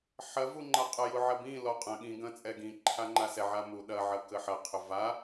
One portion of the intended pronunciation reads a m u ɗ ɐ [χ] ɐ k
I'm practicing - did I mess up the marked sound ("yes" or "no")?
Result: yes